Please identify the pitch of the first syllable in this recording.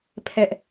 high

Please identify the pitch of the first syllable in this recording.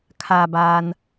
low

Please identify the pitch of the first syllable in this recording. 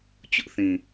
high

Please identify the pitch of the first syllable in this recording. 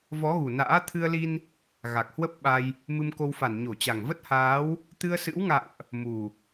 rising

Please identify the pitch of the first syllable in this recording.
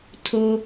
low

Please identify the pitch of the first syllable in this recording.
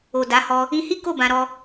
low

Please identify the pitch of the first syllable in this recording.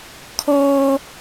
high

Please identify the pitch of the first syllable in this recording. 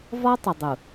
high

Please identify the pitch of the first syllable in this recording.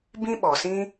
high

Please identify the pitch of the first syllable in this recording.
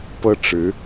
high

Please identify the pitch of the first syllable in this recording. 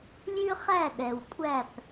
high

